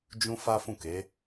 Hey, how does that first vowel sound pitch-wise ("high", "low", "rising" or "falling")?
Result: high